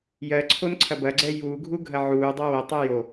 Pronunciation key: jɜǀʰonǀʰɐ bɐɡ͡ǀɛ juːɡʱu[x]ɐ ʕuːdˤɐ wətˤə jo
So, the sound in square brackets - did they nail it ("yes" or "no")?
no